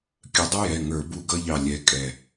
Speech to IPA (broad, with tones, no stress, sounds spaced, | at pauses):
kʲ ə˨˦ dˤ ə˥ j ɛ˩˧˩ ŋ ə˞˧˩˧ b u˥˧ ɡ ʌ˥ ʎ ɑ˧˩ lʲ ɛ˨˦ kʼ ɛ˧˩